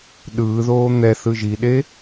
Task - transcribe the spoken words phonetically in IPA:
ɗ ɯː ð oː n̪ ɛ θ ɯ ʒ i ɗ e

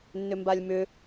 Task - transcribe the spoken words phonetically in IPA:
nː ʏ m b a lʲ m ʏ

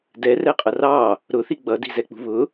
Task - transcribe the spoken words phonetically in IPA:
d ɛ r ɛ qʼ ʌ r ɑ | ɾ ʊ θ i ɡ͡b ʌ d i̤ z ɛ k͡p ṳ β ʊ

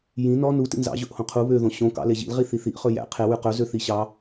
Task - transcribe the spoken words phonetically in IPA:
j ĩ n ɔ n u t ḭ n z ɑ̰ ʑ ɵ ʔ h õ qʰ u β ø ð õ ɕ õ k ɑ̰ l e ʑ ḭ l ʁ i θ i θ i ʔ χ ɵ j æ̰ qʰ e w ʉ q ɵ z ø θ i ɕ ɑ

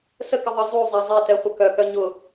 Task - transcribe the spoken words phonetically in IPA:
s ə k ə ðˤ ə zˤ u zˤ ɛ zˤ ɛ t ɛ χʷ ə k œ k œ ɲ ʊ

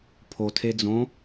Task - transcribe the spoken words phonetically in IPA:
pʰ o tʰ e d͡z õ

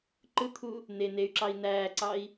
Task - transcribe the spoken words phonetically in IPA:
ǃ ɯ t̪ʰ u | n e n e y̯ ǁ ɑ i̯ n̪ æː ǀ ɑ i̯

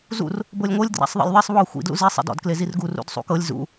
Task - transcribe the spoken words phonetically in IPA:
z ṵ r | b ɤ lʲ ŋʷ ɤ lʲ d r a̰ sˤ ðˤ ḛ lʲ ðˤ e sˤ β ɔ xʷ ḭ d l ṵ z i sˤ ḭ d ɔ̰ d k l e z i r ɡ u r ṵ d sˤ ṵ k ɤ lʲ z ṵ

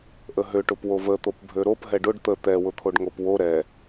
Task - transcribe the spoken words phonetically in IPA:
ʔ ə ɦ ø ʈ ʊ p w o v ə t̪ o p bʱ ø ɾ o p ɦ ɛ ɖ ʊ ɖ t̪ ə t̪ ɛ w ʊ t̪ʰ o ɖ ŋ o p w o ɾ ɛ

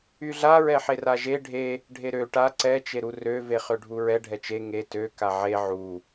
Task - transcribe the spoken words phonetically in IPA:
y ɮ a ɹ ɛ ħ e r a ʒ e ɖʱ e | ɖʱ e ɾ ø ʈ a ǀ ɛ t͡ʃ e ɾ u r ø v e χ ø ɖʱ u ɹ ɛ ɖʱ ɛ t͡ʃ e ŋ e t ø k a ʕ e ʕ u

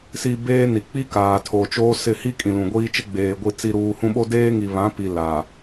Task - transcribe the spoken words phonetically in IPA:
s i˨ b eː˦ n i˨ k͡p i˦ k aː˨ tʰ o˨ t͡ʃ oː˦ s ɪ˦˨ h i˦ kʼ ĩ˨ l ũ˨ ɡʷ iː˦ t͡ʃ ɪ˦ ɡ͡b eː˨ ɡʷ i˨ t͡s i˨ ɾ uː˨ h ũ˦ ɓ o˦ d eː˦ ŋ i˨ β ã˨˦ p i˨ l a˨

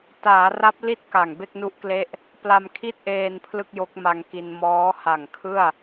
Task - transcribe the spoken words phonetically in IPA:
t aː˩˦ r a˦˥ p̚ l i˥˩ t̚ k a˨˩ ŋ b e˥˩ k̚ n u˦˥ ʔ k l e˦˥ ʔ | p l a˧ m kʰ i˥˩ t̚ ʔ eː˧ n pʰ l ɯ˥˩ k̚ j o˦˥ k̚ m a˧ ŋ k i˧ n m ɔː˦˥ h a˨˩ ŋ kʰ ɯ˥˩ a̯

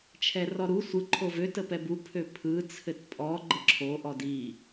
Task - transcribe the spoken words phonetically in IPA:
t͡ʃʰ ɛ r ɔ ɾ u sʷ ɯ ǃʰ o v ø t ə p ɛ b u pʰ ø pʰ ɯ t͡sʰ ɘ t pʼ ɔ ɡ͡ǃ ə ǁʰ o ʔ ɔ d i

